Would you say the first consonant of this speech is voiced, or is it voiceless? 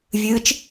voiced